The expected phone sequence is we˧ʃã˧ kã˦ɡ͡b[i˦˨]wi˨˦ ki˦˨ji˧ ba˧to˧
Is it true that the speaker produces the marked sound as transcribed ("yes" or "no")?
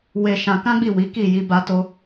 yes